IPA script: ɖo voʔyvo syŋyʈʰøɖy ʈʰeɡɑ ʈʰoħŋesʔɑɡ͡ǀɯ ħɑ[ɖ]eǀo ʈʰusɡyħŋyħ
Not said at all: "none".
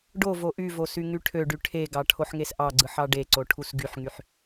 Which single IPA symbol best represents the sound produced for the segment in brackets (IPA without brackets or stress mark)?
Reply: ɖ